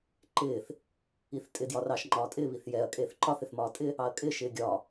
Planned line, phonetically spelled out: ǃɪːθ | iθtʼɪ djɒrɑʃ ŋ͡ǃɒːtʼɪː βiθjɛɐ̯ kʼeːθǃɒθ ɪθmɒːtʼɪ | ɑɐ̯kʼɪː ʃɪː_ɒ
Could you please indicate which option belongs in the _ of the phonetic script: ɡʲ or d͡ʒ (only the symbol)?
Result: ɡʲ